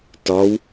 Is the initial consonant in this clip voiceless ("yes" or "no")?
yes